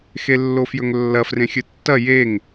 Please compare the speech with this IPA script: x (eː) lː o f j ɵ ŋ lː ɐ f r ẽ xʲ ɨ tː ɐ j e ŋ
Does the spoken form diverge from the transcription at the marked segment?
yes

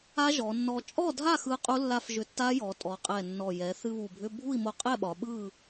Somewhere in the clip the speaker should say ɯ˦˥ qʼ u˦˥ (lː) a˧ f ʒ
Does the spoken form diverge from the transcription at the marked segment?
no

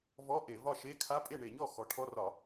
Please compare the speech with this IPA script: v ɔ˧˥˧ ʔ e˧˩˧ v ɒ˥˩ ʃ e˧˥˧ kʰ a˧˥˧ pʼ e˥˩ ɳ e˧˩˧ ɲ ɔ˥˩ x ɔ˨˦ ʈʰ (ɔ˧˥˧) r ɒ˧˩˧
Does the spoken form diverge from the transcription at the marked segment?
no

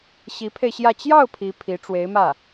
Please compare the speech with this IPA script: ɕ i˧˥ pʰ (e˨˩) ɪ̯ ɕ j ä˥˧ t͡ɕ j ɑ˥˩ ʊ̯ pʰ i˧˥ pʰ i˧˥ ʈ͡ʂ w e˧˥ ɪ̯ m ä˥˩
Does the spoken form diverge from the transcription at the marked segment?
yes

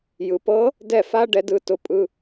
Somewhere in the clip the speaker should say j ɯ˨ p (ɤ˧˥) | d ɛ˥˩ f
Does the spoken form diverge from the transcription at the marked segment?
no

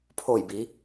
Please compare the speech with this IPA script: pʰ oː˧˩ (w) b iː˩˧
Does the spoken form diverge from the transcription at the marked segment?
yes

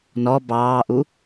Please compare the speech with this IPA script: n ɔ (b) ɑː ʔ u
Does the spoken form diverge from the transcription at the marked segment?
no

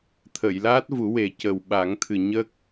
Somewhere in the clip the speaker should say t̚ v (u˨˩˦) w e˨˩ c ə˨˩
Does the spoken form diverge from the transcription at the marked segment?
no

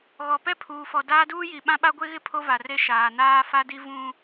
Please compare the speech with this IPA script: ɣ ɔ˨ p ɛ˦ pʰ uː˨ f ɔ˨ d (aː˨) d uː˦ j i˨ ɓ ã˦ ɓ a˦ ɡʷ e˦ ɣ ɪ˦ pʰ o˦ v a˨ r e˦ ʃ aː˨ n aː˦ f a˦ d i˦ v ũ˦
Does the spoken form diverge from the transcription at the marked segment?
yes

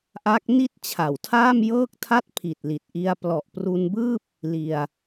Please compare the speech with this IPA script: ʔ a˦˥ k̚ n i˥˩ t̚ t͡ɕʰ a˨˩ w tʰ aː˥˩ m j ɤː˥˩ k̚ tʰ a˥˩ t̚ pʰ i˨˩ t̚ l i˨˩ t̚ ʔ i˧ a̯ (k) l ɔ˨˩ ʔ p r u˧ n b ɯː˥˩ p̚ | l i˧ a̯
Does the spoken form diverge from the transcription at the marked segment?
yes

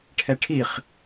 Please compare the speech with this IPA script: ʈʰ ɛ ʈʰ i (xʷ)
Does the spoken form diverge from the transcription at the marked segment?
yes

